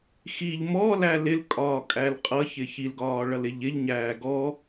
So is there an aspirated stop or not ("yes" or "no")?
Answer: no